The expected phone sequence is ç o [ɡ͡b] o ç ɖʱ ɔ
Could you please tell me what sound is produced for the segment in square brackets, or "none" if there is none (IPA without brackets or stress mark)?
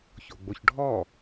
ɡ͡b